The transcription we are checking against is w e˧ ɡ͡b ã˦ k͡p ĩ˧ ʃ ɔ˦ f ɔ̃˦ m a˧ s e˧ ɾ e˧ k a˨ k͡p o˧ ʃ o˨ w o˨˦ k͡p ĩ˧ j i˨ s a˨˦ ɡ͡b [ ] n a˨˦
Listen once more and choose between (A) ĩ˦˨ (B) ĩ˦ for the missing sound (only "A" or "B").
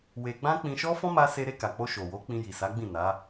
A